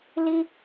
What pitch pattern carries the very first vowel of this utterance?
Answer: high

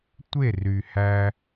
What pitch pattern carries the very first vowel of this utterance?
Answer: falling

